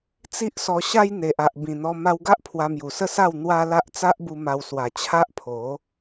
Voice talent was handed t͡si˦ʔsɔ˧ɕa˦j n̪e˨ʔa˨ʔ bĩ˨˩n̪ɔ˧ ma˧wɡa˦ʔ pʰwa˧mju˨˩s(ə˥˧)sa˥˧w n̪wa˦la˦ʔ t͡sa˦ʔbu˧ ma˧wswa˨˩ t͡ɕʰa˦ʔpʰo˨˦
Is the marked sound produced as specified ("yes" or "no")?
yes